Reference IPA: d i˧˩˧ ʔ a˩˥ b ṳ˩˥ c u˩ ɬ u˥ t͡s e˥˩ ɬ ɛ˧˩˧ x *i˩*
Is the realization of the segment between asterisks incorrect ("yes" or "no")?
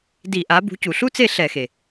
yes